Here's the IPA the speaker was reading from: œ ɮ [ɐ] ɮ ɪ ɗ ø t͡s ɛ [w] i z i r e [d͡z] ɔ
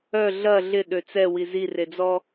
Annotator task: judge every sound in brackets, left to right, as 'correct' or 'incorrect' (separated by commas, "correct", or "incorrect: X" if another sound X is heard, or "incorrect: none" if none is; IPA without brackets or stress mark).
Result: correct, correct, correct